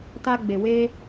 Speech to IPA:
t a˧ ɡ͡b e˨ w e˧

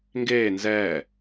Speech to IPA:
ŋ ɡ eː n z ɛː

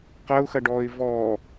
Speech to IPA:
q ɐ ʊ̯ x ɐ ɖ ɔː ɪ̯ v ɔ

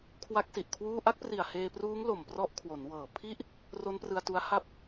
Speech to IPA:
kʰ w a˦˥ k̚ s i˨˩ ʔ kʰ w uː˥˩ ʔ a˥˩ k̚ p r i˨˩ a̯ h eː˧ p r uː˦˥ ŋ l o˨˩ m p r ɔ˦˥ ʔ kʰ w o˩˦ n w ɤː˨˩ pʰ i˦˥ ʔ | r o˦˥ n p r ɯ˧ a̯ t u˦˥ a̯ h a˦˥ p̚

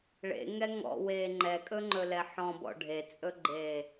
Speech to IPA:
ɭ ḛ ŋ ɛ ŋ ɔ̰ w eː ŋ͡ǃ ɛ kʼ ɵ ŋ͡ǃ ɵ l ɛ ħ ɔ̃ b ɔ̰ ɖʱ e t͡sʼ ɵ ɡ͡ǃ eː

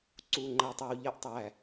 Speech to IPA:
ǀ u˧˩ ŋ͡ǃ æ˧ tˤ ɜ˧ w ʎ ɜ˥˧ ʔ tˤ æ˧˩

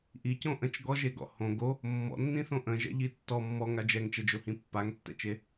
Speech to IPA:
ʔ i c õ ʔ ə̃ t͡ʃ ɡ ɔ ʒ e ɡ ɔ̰ h õ ɡ o | mː ɔ̰ nː ĩ θ õ ʔ ə̃ ʒ ɛ̰ ʎ i tː ɔ mː ɔ ŋ a d͡ʒ ɛ ŋ t͡ʃ ɛ d͡ʒ o h ĩ pː a ŋ tː ɛ̰ t͡ʃ e

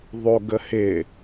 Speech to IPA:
ðˤ o ɡ ə h ɪ

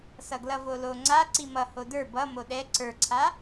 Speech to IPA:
s ʌ ɡ l ʌ v o l o ŋ͡ǀ a ǀ i m ʌ h o d ə˞ b ʌ m o ɗ ɛ ǀ ə˞ ǀʰ a

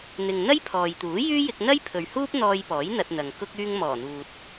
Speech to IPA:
n̪ ɪ˨ ŋ n̪ ɐ˥ j pʰ ɔː˨ j t̪ uː˨˥ j yː˥ j ɪ˧ k̚ n̪ ɐ˥ j pʰ ɵ˨ ɥ h uː˥ p̚ n̪ ɔː˧ j p ɔː˨˥ j n̪ ɐ˧ t̚ n̪ ɐ˨ ŋ k ʊ˧ k̚ yː˧ ŋ m ɔː˨˩ n̪ uː˨ t̚

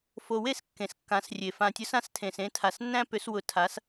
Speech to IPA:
f o˨ w e˥˩ s kː ẽ˨ s kː ã˨˦ s rʲ e˨ f ã˨ tʲ ʊ˨˦ s ã˨˦ s tʰ ẽ˨ s ẽ˨˦ tʰ a˨ s nː æ̃˦ p ʏ˨˦ s w ʊ˨˦ tʰ a˨˦ s

